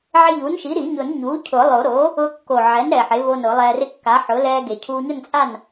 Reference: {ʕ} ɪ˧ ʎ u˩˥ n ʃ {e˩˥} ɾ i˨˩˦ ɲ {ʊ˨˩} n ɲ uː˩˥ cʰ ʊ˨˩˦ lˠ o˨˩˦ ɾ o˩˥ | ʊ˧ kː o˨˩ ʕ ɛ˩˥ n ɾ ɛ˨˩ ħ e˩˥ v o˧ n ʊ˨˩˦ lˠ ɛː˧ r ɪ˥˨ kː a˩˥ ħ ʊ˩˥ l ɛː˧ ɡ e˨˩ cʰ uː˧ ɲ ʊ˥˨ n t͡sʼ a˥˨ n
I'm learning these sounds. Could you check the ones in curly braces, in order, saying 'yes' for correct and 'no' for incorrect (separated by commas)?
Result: yes, no, no